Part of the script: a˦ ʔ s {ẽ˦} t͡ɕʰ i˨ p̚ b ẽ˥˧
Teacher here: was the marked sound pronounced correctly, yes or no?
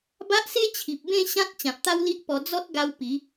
no